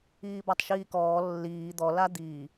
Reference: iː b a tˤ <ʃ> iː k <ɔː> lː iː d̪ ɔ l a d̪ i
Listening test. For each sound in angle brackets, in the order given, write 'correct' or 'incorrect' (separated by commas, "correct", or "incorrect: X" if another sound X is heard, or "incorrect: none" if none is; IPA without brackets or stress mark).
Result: correct, correct